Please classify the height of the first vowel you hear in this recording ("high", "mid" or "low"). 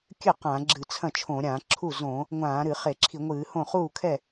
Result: mid